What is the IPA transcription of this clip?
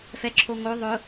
f ɛ ǁʰ o ŋ o ðˤ ʊ

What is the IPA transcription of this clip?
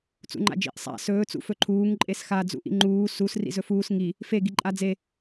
t͡s ṵ ŋ͡ǃ a̰ d͡ʒ ḭ ʔ sˤ a̰ s ɵː t͡s ṵ f ɵ ǃʰ uː ŋ ǃʼ e s x a d͡z ṵ ʔ ḭ ŋ͡ǃ uː s u s r ḭ z ɵ f uː s ŋ i | f e ɡ i ǃʼ a d͡z e

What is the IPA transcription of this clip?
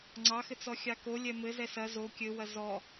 ŋ͡ǀ ɑ x ɘ t͡s ɔ xʲ ɑ k o lʲ ɛ m ɘ z ɛ s ɐ z o kʲ ɘ w ɐ z ɔ

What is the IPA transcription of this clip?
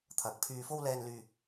t̪ʰ ɐ˨˥ k̚ pʰ yː˧ f o˥ w l ɛː˧ n l yː˧

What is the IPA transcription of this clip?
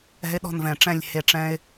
ɛ̤˦ ɪ̯ ɗ ɔ̤˦˨ n v ɛ̃˨ ʈ͡ʂ ɛ̃˦˨ lʲ h e˨ ʈ͡ʂ ɛ̃˦ ɪ̯

